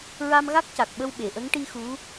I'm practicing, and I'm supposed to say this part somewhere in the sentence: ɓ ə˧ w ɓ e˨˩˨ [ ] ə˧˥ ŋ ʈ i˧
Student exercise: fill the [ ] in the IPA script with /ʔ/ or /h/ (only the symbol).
ʔ